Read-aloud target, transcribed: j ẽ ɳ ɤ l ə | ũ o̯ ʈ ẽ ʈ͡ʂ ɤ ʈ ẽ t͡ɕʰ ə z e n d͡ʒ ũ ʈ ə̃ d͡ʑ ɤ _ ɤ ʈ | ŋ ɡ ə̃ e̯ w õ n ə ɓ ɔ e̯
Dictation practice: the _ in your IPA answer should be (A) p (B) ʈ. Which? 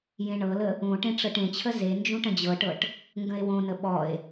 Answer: B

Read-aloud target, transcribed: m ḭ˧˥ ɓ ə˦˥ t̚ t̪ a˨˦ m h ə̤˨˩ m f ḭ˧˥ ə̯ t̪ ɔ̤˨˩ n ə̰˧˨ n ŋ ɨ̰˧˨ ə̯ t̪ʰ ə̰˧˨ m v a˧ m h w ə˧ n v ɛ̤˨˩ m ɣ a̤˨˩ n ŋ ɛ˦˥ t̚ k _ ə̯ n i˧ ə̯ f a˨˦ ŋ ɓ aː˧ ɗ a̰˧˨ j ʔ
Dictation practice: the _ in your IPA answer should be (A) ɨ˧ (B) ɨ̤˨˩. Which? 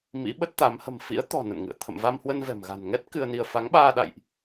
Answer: A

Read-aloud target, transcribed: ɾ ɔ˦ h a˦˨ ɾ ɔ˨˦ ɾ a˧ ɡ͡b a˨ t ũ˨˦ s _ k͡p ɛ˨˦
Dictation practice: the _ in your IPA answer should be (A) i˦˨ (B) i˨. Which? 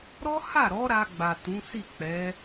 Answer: A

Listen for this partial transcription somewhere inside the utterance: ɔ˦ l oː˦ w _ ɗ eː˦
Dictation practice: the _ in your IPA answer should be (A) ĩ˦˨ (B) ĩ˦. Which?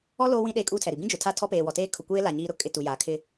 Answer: B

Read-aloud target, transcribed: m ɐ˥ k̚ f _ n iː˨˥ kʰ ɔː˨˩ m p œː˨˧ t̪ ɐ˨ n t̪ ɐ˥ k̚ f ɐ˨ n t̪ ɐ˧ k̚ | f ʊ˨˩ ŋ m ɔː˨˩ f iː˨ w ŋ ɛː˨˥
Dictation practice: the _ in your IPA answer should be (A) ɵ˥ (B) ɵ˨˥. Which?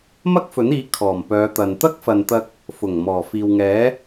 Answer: B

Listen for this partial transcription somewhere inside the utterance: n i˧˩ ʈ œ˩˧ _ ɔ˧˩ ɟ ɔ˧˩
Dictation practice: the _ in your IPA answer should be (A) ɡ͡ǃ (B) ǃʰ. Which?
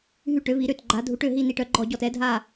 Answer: A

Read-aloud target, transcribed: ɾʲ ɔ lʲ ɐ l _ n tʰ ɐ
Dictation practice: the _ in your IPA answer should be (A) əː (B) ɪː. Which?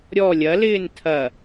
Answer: B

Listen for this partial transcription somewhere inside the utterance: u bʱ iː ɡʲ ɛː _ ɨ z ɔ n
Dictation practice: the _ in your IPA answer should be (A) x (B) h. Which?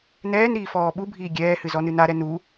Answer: B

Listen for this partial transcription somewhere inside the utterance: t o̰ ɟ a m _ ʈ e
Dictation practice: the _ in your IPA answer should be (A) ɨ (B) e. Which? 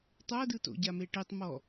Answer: B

